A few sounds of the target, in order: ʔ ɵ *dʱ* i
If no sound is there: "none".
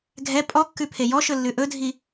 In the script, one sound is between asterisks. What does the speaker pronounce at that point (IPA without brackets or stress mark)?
dʱ